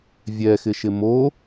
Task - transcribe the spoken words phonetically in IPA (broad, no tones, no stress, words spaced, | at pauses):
vʲɛxɪʃɪ mo